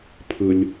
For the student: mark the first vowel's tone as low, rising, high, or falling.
low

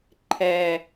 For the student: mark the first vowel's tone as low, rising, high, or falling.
low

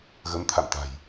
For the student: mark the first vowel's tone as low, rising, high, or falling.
rising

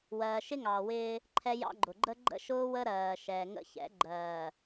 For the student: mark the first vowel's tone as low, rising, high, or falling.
low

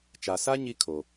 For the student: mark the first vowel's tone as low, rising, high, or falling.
low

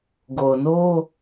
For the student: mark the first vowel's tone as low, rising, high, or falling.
low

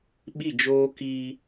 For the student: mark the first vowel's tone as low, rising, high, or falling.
falling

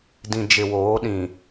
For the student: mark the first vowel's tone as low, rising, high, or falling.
low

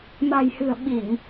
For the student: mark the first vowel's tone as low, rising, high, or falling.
low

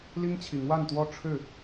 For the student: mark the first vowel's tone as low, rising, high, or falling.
high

